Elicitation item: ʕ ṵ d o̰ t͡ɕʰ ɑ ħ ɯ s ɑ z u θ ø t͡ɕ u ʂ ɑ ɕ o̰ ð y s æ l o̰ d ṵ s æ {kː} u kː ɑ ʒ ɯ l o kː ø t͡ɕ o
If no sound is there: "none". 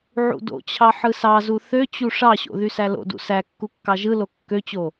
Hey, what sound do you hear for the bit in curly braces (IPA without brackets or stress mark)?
kː